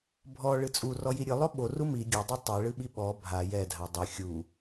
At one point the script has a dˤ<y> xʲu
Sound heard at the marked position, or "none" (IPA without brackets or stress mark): ɨ